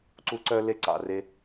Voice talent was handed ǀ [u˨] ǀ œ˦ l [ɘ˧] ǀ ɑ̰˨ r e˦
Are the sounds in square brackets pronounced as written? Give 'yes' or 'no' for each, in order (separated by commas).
no, no